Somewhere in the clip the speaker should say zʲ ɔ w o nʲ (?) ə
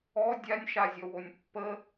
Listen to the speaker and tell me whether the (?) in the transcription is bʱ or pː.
pː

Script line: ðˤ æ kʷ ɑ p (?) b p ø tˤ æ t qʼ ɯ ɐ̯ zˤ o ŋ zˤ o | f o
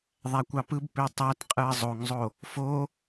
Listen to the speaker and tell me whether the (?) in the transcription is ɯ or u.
ɯ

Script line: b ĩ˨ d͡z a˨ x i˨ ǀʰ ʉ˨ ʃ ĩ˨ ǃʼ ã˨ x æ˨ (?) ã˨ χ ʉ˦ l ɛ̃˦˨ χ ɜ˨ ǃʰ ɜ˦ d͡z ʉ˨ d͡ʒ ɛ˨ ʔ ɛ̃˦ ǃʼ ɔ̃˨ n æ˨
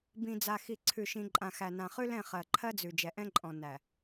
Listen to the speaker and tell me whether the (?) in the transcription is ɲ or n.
n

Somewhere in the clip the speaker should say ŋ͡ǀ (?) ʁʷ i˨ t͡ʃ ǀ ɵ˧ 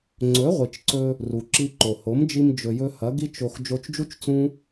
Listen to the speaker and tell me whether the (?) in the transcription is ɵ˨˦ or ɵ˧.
ɵ˨˦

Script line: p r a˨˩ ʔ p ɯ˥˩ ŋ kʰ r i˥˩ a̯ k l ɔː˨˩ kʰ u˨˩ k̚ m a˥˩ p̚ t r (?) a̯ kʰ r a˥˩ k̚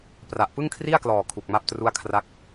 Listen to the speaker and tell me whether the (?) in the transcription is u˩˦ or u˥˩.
u˥˩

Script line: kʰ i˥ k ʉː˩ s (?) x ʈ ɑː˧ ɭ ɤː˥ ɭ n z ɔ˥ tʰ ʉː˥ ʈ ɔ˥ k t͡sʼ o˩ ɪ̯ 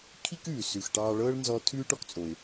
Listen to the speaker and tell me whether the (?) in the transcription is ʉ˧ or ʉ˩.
ʉ˩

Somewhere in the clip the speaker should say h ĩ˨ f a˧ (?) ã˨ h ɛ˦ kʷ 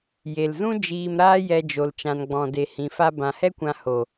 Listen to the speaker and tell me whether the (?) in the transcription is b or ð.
b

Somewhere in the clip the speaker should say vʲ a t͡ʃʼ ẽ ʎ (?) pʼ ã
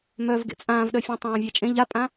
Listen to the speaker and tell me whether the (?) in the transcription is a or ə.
a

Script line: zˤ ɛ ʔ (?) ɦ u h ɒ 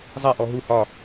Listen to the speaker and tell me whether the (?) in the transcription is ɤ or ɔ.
ɔ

